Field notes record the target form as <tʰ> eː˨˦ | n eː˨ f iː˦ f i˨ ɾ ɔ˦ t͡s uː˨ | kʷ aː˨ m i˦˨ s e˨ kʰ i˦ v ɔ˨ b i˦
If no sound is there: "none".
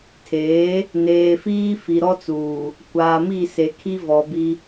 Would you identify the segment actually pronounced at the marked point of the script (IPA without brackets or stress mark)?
tʰ